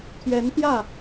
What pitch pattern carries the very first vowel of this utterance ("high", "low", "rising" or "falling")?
rising